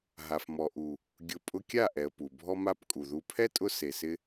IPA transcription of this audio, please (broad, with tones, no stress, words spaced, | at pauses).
ɦa˨fmɔ˨ʔu˨ | ɡʲʊ˨ pʼʊ˧kʲa˦˨ʔɛ˨ə̯ pu˨bʱɔ˦ma˦p kʼu˨ðu˧ pʰɛ˦tʼʊ˧ se˨sɪ˧